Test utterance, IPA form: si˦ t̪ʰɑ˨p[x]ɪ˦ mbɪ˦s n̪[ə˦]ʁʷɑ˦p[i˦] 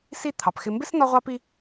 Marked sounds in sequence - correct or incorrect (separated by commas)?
correct, incorrect, correct